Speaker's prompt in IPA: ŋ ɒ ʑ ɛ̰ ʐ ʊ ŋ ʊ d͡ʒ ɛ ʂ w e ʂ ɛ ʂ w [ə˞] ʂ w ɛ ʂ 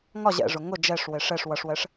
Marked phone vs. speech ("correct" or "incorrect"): incorrect